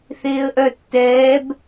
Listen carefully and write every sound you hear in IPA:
θeːə̯ʔœ tːɛːb

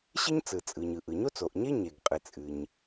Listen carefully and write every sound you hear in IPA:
ɕɨ˥ɲt͡sɯ˩t͡sʼɯ˩ɲɯ˩ ʔɯ˩ɲo˥t͡so˩ʔɲe˥ ɲe˩ɡqʼɨ˩ t͡sʼɨ˩ɲ

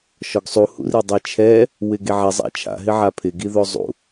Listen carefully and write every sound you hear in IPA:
ʃɔɡsˤuhṵri dˤɛt͡ʃʰɛ | wɪɡeʕɛ zˤa̰t͡ʃʰa̰ɦɪ ʕapʰɪɡiðo zˤṵ

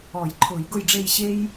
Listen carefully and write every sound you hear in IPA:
ɔ˨˩˦jǃʰʊː˨˩˦jɡʊ˦˨jɖ͡ʐe˦˨j ɕe˥j

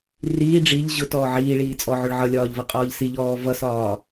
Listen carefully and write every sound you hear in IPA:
riː ɖ͡ʐiʎ ʑʊtɔː ʕiːɭiː t͡sʼɔʕʊɭʕʌlʲɒːʎ vʌqʼɒːʎsiʎɔː vʌsɒː

